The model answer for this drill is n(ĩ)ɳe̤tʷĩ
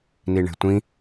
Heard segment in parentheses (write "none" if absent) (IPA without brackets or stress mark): i